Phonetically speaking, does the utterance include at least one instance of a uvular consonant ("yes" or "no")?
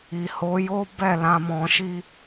no